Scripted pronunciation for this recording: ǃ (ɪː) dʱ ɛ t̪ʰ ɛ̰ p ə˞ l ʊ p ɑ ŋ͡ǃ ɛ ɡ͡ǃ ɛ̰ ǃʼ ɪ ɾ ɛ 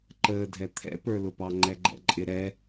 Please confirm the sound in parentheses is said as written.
no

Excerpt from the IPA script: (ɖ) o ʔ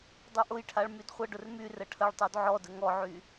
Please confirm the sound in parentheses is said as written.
no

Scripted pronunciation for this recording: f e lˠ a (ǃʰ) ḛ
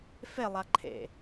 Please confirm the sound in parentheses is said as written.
yes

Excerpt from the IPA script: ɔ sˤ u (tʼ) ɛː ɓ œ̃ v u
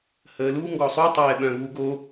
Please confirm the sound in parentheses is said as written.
no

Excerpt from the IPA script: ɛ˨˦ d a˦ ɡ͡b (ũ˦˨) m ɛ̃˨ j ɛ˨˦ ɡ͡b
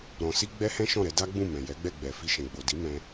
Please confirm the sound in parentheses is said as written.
yes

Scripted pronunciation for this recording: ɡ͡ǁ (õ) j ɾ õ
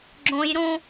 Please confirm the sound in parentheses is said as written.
yes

